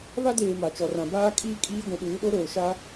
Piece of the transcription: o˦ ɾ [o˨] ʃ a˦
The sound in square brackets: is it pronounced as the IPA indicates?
no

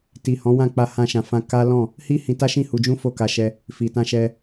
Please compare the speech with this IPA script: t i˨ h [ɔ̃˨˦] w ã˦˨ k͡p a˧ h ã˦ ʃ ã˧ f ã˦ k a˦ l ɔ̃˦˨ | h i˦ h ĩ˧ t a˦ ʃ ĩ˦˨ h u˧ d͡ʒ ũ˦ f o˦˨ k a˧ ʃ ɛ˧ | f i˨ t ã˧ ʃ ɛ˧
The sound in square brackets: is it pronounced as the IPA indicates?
yes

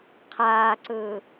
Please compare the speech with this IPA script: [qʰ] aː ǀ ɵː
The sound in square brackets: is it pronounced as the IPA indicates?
yes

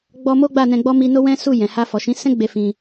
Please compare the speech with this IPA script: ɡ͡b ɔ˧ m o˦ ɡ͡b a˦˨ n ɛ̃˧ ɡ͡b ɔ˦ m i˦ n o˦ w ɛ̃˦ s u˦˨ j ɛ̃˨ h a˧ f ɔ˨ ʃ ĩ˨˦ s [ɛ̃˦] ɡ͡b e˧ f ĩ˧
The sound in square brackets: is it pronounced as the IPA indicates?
yes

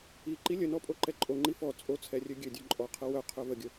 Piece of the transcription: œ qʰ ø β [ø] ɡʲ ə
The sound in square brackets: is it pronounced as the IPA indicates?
no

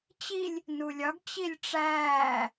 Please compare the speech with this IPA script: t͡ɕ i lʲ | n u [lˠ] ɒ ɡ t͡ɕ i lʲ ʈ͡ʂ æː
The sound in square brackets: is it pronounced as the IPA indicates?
no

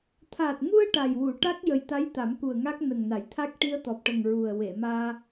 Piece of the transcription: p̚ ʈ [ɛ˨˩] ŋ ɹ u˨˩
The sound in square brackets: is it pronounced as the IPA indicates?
no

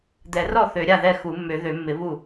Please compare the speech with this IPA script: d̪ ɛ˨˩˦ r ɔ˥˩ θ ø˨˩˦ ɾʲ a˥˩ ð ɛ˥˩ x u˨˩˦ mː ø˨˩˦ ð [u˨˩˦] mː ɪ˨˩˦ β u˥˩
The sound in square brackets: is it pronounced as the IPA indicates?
no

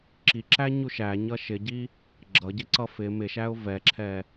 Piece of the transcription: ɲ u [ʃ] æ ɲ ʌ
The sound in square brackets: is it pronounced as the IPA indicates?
yes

